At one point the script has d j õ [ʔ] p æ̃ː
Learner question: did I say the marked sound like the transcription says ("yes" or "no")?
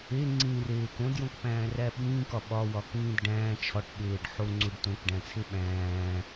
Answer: no